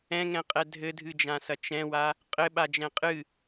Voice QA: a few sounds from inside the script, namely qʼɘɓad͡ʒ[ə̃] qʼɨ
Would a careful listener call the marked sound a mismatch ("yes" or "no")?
yes